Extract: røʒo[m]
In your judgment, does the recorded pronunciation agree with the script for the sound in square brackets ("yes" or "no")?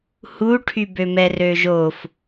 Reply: no